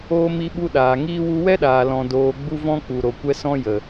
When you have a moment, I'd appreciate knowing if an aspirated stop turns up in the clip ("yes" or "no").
no